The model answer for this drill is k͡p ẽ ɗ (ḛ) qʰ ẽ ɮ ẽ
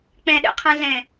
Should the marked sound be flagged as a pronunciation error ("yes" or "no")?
no